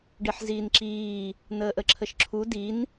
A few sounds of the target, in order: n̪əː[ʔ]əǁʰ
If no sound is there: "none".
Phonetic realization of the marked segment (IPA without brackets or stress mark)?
ʔ